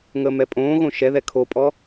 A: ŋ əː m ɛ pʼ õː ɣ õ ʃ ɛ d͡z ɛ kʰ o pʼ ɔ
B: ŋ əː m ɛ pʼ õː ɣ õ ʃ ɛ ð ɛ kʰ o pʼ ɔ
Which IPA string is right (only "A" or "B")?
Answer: B